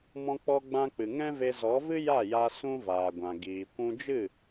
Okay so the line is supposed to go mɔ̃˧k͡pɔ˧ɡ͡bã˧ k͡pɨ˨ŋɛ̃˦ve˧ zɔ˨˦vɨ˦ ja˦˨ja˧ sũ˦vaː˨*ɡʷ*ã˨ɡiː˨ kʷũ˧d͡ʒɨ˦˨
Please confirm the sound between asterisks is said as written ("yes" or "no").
yes